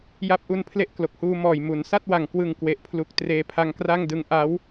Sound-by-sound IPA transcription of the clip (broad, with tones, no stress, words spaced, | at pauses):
ja˦˥p̚ʔu˧n pʰle˥˩ʔklo˨˩k̚huː˧ mɔː˨˩j mu˩˦n sa˥˩t̚wa˨˩ŋ kwɯ˨˩ŋ kwe˨˩ʔpʰlu˨˩k̚ treː˧pʰa˧ŋkra˥˩ŋdɯ˦˥ŋ ʔa˦˥w